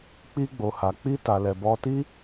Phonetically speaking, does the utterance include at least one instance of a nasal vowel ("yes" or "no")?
no